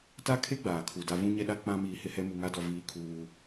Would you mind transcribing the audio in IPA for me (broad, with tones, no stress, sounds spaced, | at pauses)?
t a˦ kʰ e˦ ɡ͡b aː˨ kʰ u˨ d a˦ v ũ˦ ɲ ɛ˦ ɗ a˦ k͡p ã˦ m iː˨ h ɪ˦ h ɛ˦ m u˨ ŋ a˦ d ɔ˨ v iː˦ kʰ uː˦